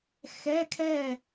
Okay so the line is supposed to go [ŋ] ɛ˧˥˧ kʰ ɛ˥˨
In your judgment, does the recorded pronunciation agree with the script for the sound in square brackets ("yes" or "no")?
no